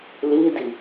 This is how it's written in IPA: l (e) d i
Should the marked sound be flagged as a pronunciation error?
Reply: yes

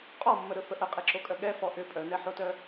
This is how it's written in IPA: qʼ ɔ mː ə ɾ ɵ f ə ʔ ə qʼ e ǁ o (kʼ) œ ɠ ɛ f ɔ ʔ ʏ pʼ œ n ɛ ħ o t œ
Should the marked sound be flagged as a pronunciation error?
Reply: no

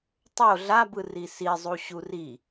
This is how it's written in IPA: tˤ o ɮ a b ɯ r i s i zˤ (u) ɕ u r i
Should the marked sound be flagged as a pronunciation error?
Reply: no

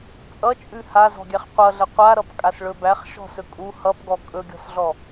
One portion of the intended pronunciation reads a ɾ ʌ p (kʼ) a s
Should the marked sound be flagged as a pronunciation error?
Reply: no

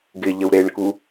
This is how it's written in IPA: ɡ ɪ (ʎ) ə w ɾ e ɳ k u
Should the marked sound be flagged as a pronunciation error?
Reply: no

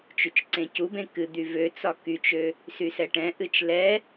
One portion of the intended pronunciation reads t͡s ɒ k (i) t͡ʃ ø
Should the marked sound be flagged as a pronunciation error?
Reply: yes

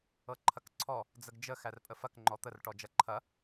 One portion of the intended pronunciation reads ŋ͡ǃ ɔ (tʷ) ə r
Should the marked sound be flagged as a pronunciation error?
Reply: yes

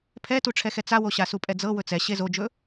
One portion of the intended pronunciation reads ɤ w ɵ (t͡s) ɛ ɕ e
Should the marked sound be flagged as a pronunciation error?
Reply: no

